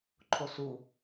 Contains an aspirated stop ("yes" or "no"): yes